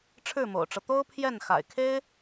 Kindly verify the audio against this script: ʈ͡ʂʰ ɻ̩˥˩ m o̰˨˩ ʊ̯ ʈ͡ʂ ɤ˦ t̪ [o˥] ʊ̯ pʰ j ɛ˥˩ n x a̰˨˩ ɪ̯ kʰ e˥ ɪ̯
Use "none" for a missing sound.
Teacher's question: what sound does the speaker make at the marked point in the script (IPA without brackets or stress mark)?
o˥